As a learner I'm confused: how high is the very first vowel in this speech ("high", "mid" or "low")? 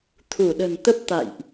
high